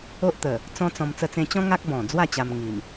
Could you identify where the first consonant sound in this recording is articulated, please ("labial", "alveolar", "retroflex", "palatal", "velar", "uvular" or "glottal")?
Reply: glottal